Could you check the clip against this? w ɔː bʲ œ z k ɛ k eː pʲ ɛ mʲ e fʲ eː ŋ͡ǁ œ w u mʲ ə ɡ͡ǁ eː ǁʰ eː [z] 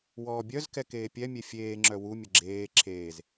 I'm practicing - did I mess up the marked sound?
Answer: no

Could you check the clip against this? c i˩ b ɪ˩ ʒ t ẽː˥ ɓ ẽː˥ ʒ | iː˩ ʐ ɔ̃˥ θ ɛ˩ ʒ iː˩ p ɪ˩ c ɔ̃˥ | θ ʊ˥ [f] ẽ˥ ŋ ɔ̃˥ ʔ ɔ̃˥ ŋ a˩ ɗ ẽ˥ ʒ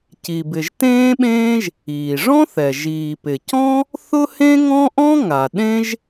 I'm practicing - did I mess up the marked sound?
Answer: yes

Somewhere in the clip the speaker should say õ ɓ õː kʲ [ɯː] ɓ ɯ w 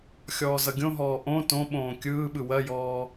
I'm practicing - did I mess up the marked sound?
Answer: no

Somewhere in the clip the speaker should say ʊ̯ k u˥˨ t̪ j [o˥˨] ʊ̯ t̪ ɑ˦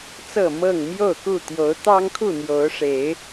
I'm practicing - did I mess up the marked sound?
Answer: yes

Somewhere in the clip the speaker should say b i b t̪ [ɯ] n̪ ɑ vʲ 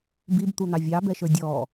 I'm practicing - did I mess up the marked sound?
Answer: yes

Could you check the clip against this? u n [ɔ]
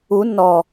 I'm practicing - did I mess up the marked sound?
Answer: no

